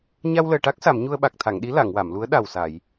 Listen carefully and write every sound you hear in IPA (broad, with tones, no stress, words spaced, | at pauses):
ɲa˧wləː˨˩ʈa˦˥k̚sa˨˩˨m ɲu˧ə̯ɓa˨˩k̚t̪ʰa˨˩˨ŋɗi˧˥ la˨˩˨ŋ wa˨˩˨mlu˧˥ə̯ ɗa˨˩wsa˨˩˨j